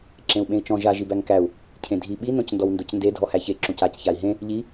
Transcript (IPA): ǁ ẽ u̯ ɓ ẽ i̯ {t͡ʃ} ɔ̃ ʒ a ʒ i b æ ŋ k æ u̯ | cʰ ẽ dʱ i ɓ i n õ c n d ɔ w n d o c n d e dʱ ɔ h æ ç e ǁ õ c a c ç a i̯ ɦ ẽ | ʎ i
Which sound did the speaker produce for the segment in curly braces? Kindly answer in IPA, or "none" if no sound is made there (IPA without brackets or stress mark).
t͡ʃ